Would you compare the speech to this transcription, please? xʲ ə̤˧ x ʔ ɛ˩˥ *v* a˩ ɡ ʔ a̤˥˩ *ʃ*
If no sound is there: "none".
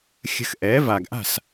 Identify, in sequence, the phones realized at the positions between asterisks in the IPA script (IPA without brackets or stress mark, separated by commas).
v, s